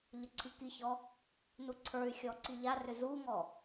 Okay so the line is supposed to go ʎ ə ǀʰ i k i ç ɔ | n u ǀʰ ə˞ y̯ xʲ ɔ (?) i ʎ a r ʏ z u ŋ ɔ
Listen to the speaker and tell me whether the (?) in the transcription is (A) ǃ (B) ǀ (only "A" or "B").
B